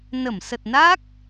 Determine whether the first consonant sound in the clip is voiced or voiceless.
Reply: voiced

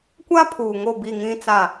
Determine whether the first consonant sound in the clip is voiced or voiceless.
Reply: voiceless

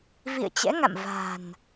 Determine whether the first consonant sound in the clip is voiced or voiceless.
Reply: voiced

